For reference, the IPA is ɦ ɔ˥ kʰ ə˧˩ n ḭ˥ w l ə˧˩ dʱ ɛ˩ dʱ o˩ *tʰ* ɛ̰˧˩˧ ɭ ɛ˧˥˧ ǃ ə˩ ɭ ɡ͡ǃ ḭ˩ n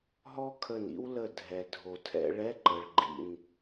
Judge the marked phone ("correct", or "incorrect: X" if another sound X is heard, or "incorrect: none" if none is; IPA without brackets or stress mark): correct